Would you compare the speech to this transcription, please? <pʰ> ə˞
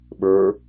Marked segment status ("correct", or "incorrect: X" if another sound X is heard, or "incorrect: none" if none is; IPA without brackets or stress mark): incorrect: ɓ